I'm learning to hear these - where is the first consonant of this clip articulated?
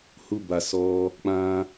throat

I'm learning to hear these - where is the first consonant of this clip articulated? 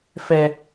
lips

